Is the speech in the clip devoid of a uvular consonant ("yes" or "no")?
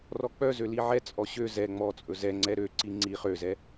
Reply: no